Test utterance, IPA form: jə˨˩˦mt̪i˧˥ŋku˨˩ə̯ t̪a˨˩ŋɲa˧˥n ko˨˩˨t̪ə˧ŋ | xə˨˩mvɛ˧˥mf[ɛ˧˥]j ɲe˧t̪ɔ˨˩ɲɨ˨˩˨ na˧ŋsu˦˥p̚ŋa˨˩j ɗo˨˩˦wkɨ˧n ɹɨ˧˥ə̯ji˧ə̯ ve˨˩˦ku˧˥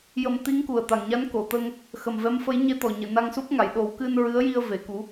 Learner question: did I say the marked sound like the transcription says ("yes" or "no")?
no